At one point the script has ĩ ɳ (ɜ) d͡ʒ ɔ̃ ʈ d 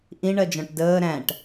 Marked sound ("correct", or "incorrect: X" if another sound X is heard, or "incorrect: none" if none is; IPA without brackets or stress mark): correct